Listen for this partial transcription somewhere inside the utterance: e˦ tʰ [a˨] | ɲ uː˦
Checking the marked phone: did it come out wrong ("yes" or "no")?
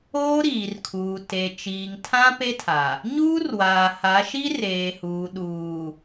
no